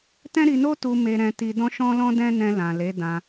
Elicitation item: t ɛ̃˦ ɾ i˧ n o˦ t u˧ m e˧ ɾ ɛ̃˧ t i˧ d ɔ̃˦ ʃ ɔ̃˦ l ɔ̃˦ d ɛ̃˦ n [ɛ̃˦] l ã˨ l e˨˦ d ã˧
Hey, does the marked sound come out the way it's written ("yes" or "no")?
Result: no